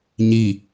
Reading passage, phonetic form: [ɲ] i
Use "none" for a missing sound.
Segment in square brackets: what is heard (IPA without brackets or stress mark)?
ɲ